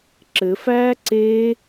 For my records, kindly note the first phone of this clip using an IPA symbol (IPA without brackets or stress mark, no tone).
ǁ